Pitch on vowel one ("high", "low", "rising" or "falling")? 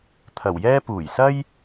low